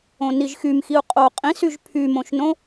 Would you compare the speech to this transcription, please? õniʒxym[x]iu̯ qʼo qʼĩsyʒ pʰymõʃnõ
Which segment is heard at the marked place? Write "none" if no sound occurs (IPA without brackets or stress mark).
x